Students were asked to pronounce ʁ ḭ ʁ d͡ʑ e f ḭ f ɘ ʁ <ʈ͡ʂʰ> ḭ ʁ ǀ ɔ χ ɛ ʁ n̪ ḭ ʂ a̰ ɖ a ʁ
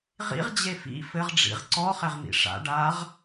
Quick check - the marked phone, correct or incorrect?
incorrect